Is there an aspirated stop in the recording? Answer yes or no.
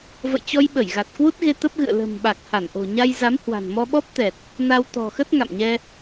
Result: no